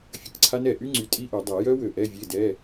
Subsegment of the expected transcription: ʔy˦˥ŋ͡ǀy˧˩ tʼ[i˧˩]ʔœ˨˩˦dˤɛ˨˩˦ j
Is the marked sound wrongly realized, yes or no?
yes